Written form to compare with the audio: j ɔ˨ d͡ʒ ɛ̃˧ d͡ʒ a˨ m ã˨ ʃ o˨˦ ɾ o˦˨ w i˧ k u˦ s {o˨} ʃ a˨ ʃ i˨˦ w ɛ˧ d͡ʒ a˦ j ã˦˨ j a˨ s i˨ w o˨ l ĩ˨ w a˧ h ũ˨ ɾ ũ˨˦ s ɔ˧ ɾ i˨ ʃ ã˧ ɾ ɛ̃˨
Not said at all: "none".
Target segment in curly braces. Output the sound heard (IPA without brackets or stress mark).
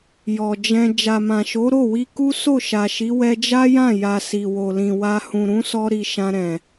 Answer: o˦˨